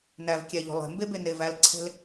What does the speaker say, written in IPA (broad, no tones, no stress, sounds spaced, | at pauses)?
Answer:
n æ v kʲ æ ʎ o̤ lˠ e̤ m b e b e n e v æ l ǀʰ e̤ l